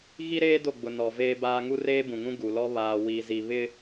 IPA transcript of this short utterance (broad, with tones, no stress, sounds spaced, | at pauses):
ɣ i˦ ɾ eː˦ d o˦˨ ɡ͡b ʊ˨ n ɔ˨ v eː˦ b aː˦ ŋ u˦ r eː˦ b ũ˨ ŋ ũ˦ ɡ u˨ l ɔ˦ β aː˨ w i˨ z i˨ β ɪ˦